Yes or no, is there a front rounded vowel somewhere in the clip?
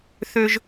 yes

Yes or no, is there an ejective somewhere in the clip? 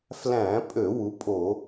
yes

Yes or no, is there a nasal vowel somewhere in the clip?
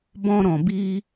yes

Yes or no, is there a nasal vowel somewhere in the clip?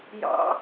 no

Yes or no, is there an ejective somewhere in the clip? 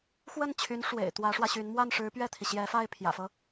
no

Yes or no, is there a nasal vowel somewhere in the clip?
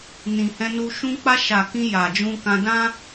yes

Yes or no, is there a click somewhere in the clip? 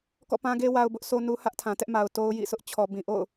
no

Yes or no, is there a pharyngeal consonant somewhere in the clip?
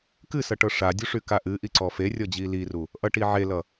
yes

